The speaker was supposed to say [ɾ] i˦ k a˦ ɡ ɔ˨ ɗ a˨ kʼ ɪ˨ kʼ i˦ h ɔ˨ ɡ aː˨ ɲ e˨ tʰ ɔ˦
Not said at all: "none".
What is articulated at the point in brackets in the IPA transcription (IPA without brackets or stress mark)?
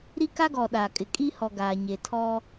ɾ